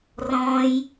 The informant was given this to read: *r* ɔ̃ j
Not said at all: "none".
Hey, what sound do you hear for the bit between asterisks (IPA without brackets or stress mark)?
r